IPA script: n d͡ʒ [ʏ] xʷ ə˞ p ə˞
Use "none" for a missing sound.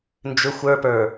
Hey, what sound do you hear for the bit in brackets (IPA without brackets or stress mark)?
ʏ